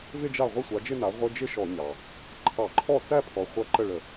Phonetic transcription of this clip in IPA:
v ɪ˥˧ d͡ʒ a˥˩ ʁʷ ə˥˧ sʷ a˩˥ d͡ʒ ɪ˥˧ n a˩˥ ʁʷ ɪ˧˥˧ d͡ʒ ɪ˥˧ ʃ ɔ˧˩˧ ɲ ɑ˩ | ǃʰ ɑ˧˩˧ ǃʰ ɔ˥˩ t͡s æ˥˧ pʰ ɔ˩˥ χʷ ɐ˧˥˧ ǃ ə˥˩ ɭ ə˧˩˧

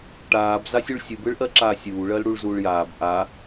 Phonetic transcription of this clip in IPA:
ʈ aː b z a sʲ u ɭ sʲ ɯ b ɯ ɭ ʔ ɜ ǁ aː sʲ uː ɭ ɜ l ɽ u ɭ z uː ɭ j aː b ʔ a

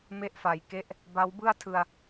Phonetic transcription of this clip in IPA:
m e˦˥ ʔ f a˩˦ j k e˦˥ ʔ | b a˦˥ w b ɯ˥˩ a̯ tʰ ɯ˧ a̯

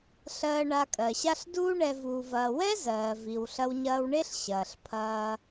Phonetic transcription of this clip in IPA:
ɬ ɜː˧ ɳ a˧ kʼ ɜ˩ ɕ a˥ ɬ d uː˥ ɳ ɛ˧ v uː˧ v ɐː˧ w ɛ˥ z ɜː˩ v i˩ w ɬ ɐ˧ w ɲ ɐː˧ w ɳ e˥ ɬ ɕ ɐː˩ ɬ pʰ ɐː˧

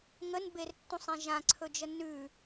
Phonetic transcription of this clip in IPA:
ŋ ə n b e r tː ũ sˤ ẽ ʒ ã ǀʰ ɵ d͡ʒ ə n ʉ

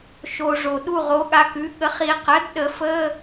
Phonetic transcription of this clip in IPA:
ʃ o˩ ʐ o˩ ɗ u˦˨ ʁ o˩˥ ɠ a˩˥ k ʉ˩˥ ɠ ə˩˥ χ i˨˩˦ q ə˩˥ d ɗ ə˨˩˦ f ə˧˥˧

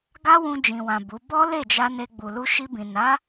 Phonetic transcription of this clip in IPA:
ɡ a˦ w ũ˧ d͡ʒ ĩ˨ w ã˨ b u˨˦ b ɔ˦ l e˦˨ d͡ʒ a˧ n e˧ ɡ͡b u˨ l u˧ ʃ i˧ b ĩ˨ n a˨˦

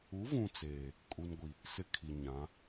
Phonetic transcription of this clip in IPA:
u˨˦ v ũ˨ t͡s eː˨ | kʼ u˦ n ɡʷ i˨ | s ɪ˦ kʰ i˨ ɲ ã˨˦

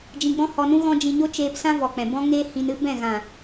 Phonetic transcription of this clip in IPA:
d͡ʒ ĩ˧ ɡ͡b ɔ̃˦ h ɔ˧ n ũ˦ ɣ ɔ̃˦ d͡ʒ ĩ˧ ɲ o˦ t͡ʃ eː˧ p s ã˦ v ɔ˨ k͡p ɛ̃˨ b ɔ̃˦ ŋ eː˦ h ĩ˧ n ɨ˦ b ɛ̃˦˨ ɣ ã˨

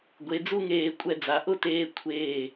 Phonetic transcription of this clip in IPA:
ɡʷ e˩˧ d͡z u˥˧ ŋ eː˧˩ kʷʼ ɛ˧˩ d͡z a˩˧ ʔ ʊ˥˧ t eː˧ kʷʰ eː˧˩

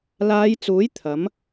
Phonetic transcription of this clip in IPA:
l aː˨˧ j t͡s uː˨˥ j t̪ʰ ɐ˨˥ m

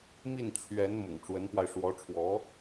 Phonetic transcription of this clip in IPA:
m i˥˩ n t͡ɕʰ ɥ ɛ˧˥ n m ʊ̰˨˩ ŋ ʈ͡ʂ w ə˧˥ n p w a˧ ɪ̯ ʂ w ɔ˧˥ ʈ͡ʂʰ w ɔ˧˥

